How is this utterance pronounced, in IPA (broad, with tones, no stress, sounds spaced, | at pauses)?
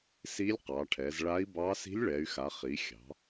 s i˧˥ lʲ q ɑ˩˧ ʈʰ ɛ˩˧ z ɭ a˧˥ i̯ b ɑ˧˥ s i̤˧˥ lʲ ɭ ɛ˩˧ y̯ x a˩˧ χ i˩˧ xʲ ɑ̤˩˧